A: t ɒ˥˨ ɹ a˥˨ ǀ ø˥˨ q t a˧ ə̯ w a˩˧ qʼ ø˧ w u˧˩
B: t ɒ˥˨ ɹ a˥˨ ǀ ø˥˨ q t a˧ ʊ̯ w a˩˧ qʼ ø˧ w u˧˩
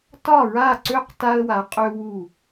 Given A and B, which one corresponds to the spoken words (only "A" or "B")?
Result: A